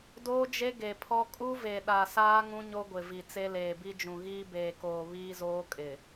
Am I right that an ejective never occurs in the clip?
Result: no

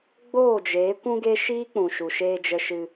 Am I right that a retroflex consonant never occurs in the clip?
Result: yes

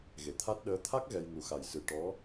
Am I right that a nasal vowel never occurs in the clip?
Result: yes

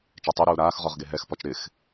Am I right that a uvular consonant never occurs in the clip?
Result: no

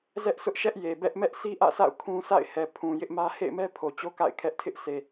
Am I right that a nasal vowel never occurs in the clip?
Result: no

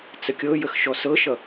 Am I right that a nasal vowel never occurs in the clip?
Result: yes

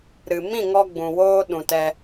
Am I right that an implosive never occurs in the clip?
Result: no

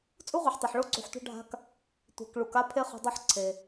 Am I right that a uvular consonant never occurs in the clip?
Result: no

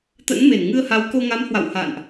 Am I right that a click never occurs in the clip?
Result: yes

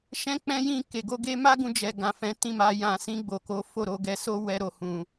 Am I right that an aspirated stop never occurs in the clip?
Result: yes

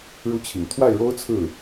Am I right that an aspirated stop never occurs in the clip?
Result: no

